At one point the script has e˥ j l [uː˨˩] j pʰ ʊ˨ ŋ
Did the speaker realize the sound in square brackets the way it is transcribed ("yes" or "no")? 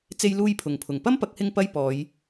no